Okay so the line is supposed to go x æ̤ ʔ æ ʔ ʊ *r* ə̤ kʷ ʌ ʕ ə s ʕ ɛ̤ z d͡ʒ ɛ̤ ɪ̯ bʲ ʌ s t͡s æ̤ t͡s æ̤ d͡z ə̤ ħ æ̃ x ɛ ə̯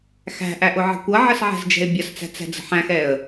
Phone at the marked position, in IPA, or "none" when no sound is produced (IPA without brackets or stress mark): ʕ